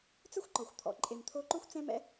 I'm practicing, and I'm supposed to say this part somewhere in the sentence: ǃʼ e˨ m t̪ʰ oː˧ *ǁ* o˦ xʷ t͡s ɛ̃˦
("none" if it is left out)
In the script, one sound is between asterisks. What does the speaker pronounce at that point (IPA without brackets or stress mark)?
ǃ